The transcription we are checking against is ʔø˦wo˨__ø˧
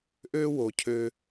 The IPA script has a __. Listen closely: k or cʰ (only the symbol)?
cʰ